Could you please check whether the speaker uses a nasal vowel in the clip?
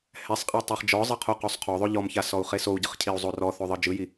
no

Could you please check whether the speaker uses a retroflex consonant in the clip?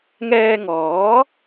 no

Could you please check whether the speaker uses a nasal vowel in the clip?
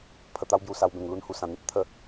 yes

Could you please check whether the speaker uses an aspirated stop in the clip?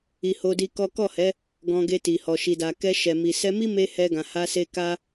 no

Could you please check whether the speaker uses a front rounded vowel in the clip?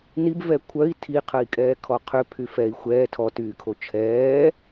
yes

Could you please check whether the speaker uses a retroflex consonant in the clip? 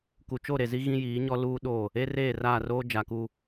no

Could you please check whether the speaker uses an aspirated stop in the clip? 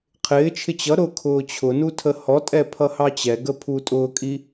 yes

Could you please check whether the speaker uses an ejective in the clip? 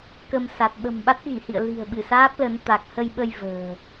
no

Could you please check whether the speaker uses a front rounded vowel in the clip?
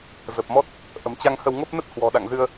no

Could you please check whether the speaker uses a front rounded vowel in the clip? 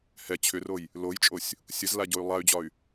yes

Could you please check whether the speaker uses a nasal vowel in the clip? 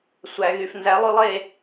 no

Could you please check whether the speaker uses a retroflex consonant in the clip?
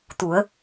no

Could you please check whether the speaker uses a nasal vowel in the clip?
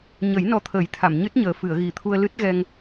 no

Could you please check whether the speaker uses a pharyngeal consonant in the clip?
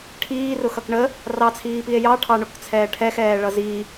no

